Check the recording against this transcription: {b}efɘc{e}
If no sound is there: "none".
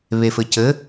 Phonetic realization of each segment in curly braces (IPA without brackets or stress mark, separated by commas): β, ɘ